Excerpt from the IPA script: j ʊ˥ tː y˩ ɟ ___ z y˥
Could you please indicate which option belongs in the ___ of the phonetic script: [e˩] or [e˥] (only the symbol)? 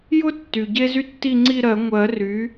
e˥